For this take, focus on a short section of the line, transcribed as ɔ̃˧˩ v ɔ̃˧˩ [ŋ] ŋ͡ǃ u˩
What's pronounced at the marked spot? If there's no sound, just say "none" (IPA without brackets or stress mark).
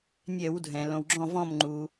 m